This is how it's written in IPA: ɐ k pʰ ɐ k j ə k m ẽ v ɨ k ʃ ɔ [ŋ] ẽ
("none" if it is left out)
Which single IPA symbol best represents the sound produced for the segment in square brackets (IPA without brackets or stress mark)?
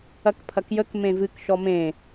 m